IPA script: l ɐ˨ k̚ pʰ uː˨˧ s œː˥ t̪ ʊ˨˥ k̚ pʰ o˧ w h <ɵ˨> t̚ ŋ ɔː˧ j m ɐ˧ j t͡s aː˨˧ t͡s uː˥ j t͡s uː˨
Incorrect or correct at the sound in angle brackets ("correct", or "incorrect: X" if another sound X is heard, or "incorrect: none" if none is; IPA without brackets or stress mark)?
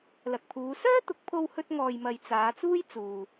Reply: incorrect: ɵ˥